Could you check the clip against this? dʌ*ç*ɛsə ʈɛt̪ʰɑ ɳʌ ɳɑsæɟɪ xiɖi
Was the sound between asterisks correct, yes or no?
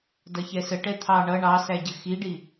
yes